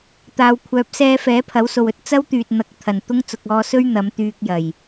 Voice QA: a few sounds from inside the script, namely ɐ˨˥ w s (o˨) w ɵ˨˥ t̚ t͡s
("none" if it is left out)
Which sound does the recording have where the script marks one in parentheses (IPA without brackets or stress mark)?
o˨